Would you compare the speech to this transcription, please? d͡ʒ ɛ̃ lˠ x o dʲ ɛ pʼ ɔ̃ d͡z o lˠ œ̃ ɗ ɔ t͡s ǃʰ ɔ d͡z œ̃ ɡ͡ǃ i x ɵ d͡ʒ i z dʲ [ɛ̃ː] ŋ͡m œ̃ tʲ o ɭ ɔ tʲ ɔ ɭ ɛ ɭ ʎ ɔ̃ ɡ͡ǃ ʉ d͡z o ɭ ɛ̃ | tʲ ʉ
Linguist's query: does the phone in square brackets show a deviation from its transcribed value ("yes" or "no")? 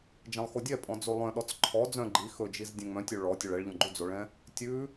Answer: yes